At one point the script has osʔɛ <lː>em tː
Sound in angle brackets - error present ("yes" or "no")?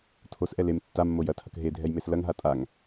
yes